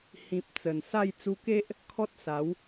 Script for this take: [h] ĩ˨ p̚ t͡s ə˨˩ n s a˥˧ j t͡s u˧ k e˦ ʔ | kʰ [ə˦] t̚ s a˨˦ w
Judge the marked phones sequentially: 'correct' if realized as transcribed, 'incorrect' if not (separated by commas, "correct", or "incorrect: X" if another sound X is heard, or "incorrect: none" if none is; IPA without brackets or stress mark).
correct, incorrect: ɔ˦